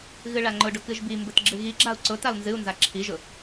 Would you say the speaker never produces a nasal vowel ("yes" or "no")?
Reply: yes